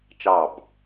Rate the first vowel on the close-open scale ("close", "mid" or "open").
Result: open